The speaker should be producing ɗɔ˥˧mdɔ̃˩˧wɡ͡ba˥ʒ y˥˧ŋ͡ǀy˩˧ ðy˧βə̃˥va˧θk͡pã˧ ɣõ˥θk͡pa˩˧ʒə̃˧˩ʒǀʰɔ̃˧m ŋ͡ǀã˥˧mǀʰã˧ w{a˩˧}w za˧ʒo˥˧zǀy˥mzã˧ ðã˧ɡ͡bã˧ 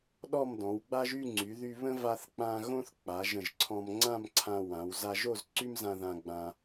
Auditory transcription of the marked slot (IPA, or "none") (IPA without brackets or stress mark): ã˩˧